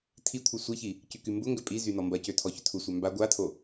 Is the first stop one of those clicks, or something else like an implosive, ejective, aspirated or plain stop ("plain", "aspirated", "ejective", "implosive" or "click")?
aspirated